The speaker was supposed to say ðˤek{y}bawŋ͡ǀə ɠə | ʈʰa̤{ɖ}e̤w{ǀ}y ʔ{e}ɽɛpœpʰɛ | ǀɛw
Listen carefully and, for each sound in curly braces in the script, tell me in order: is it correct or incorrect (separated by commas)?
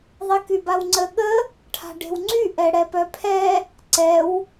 correct, correct, incorrect, incorrect